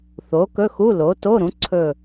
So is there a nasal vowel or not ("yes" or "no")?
yes